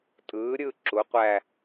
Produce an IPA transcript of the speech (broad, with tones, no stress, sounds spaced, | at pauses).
tʼ ɯː˨˦ ɾʲ ɯ˥˧ ǁ u˨˦ qʷ æ˥˧